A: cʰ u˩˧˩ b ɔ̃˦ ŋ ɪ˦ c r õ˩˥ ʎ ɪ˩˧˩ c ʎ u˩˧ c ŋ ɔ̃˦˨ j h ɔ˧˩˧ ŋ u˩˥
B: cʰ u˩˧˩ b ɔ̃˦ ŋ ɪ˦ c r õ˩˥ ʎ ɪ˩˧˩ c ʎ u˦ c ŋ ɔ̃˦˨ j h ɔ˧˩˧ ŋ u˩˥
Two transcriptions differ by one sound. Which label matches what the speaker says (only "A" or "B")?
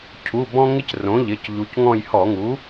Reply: A